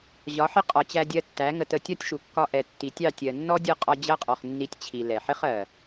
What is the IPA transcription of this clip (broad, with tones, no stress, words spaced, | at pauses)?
ʑɒ˨˦ħɪ˦ qʼɒ˨t͡ɕæ˧dʲɜ˧ tːæ˨˦ ŋə˧tə˧ tʲɒ˦tʲʃu˨ kːɒ˧ʔɛ˨ tːi˨tʲɑ˦˨tʲɜ˨ nːɔ˦dʲʌ˦˨qʼɒ˧ d͡ʑʌ˦qʼɔ˨χ nːi˧tʲt͡ɕʰi˨ lɛ˨ ħɪ˦χɜ˨